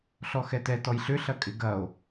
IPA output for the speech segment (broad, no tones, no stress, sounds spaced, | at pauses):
ɬ ɔ x ɛ t ɛ t ɔ j ɬ ʏ ɬ ɐ kʼ ɪ ɡ ɐ o̯